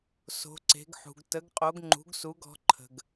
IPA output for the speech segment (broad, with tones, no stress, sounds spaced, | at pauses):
s o̤˩˧ ǀ e̤˩˧ ɡ ħ ṳ˩ ɡ t ə˩˧ ɡ qʼ o˩˧ ɡ ŋ͡ǃ ṳ˩˧ ɡ s u˩˧ ɡ ɔ̤˩˧ ǃʰ ə̤˩ ɡ